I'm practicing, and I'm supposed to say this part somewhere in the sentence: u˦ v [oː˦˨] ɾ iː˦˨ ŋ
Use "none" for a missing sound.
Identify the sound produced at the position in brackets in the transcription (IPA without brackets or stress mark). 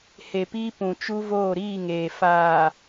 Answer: oː˦˨